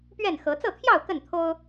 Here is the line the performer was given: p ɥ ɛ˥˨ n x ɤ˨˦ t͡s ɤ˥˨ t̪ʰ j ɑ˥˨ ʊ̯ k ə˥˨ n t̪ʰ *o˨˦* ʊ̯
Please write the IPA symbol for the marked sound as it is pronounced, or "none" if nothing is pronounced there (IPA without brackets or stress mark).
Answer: o˦